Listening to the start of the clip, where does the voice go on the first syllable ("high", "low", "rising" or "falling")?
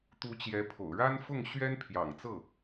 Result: rising